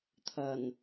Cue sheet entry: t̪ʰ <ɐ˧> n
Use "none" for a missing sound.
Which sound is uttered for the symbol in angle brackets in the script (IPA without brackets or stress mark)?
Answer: ɐ˨˩